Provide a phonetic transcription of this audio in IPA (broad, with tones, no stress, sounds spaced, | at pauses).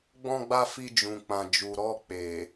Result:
ɡ͡b ɔ̃˧ ɡ͡b a˧ f i˧ d͡ʒ ũ˨ k͡p ã˨ d͡ʒ u˨ ɾ ɔ˧ k͡p e˨